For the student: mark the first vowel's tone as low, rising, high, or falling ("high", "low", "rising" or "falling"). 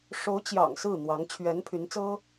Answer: rising